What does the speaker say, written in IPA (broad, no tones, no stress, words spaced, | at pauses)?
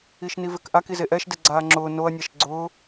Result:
iʃnivɪkʔak izeʔɛʃ deɡ͡ǀaːŋ͡ǁʊː noɐ̯ nʲaʃɡ͡ǀʊː